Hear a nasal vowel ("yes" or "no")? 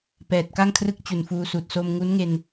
no